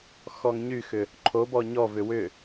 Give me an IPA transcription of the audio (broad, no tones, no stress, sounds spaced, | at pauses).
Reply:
x ɔ ŋ ɲ y x ʏ | ǃʰ o b ɔ ɲ ɔ v ʏ w ʏ